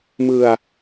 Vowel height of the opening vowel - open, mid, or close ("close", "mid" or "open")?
close